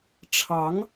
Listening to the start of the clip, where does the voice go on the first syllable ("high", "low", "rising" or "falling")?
rising